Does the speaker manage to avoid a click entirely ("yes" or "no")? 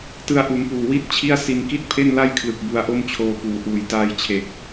yes